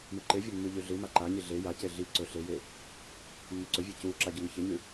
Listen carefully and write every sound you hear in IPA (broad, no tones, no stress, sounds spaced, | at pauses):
m ɨ ǃ e vʲ ɵ mː ʉ ʎ ʉ ɮ ɨ m a ǃ a ɲ i ɮ e j a c e ɮ i ǀ ɵ ɬ e j e | mː ɵ ǀ ɵ vʲ e c u ǁ a ɟ ɵ ŋ ɵ ç e ɲ ʉ